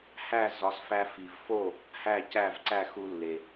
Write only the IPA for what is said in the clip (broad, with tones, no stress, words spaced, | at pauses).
hæ˥˩zɒ˩˥sfæ˧ fi˩v fo˥˩ | hæ˥˩ cæ˥˩vǀæ˥˩xu˧lːe˩